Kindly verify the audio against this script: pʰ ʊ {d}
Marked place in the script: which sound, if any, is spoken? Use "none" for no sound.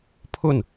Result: n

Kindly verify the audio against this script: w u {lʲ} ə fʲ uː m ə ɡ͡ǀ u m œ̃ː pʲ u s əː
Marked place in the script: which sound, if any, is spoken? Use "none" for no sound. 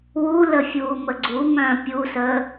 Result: l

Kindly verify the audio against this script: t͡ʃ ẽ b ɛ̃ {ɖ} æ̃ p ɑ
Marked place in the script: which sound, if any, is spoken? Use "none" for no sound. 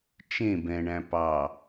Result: ɳ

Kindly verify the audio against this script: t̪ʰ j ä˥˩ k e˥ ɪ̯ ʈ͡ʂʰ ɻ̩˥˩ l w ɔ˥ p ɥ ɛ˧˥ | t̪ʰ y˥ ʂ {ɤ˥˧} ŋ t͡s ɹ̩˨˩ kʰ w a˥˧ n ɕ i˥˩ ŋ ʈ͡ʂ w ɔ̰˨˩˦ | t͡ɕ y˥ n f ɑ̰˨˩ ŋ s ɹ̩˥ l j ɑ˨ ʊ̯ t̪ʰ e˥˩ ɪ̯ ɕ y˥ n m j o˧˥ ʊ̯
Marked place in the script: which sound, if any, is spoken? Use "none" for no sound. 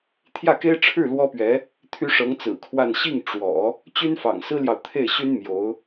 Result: ɤ˧˥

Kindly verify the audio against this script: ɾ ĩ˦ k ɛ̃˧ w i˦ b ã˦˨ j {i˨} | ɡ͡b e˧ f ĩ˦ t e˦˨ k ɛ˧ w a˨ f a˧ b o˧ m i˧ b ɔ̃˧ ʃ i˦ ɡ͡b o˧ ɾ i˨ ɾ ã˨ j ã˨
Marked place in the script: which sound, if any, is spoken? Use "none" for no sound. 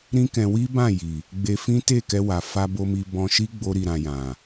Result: i˨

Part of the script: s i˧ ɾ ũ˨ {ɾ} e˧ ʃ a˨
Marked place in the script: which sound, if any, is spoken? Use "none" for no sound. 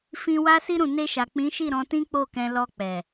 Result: n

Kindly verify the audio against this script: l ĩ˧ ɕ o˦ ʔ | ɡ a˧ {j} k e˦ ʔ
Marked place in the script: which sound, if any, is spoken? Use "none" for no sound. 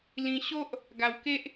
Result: w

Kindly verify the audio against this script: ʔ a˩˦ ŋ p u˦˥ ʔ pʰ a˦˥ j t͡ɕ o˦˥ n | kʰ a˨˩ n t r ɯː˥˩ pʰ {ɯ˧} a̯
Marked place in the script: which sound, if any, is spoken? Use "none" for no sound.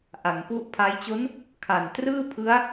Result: ɯ˦˥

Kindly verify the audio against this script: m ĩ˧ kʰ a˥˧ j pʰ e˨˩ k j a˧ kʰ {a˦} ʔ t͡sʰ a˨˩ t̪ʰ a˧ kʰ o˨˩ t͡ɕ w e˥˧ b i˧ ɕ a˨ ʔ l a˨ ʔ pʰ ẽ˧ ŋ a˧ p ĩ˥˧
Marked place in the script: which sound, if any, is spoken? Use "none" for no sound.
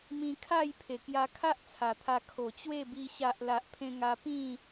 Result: a˦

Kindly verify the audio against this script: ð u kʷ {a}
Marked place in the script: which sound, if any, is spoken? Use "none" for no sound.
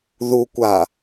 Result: a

